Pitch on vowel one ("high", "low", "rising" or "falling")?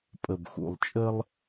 low